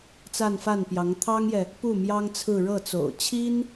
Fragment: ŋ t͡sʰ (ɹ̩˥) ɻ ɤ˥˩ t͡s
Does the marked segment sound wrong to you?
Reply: yes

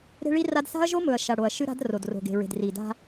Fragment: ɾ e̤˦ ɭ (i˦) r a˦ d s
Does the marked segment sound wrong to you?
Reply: no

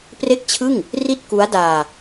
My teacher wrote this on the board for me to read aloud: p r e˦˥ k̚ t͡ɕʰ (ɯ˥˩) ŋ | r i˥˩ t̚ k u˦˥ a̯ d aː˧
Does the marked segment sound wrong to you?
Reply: no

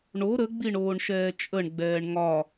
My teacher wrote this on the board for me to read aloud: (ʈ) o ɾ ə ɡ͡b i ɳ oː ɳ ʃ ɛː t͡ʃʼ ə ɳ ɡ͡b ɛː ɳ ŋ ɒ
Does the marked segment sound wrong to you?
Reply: yes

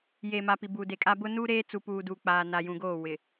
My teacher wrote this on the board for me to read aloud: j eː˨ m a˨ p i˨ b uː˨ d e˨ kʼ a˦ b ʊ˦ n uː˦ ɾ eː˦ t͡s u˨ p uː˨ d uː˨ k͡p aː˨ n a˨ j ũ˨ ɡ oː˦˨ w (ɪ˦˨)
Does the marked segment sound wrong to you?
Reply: yes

